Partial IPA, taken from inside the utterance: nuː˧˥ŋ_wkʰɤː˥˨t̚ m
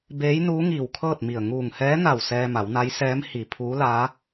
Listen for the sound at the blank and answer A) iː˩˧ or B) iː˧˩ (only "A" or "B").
B